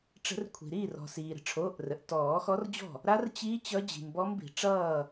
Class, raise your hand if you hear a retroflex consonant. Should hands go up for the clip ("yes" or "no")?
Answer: yes